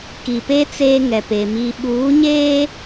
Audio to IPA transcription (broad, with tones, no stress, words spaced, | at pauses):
ki˨pe˦ t͡seː˦ŋɛ˨pe˨ mi˨ɓuː˨˦ɲeː˦